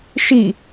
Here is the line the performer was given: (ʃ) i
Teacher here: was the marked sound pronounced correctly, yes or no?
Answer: yes